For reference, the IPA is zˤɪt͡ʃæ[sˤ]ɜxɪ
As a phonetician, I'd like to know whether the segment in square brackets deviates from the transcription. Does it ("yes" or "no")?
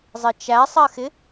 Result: no